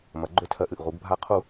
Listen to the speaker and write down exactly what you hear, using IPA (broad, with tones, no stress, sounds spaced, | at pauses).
m ɐ˩˧ ɡ͡ǃ ø˨˥ tʰ ɜ˩˧ ʔ ɨ˨˩ ʔ ʁ u˩˧ ɡ bʱ a˨˥ qʰ u˨˩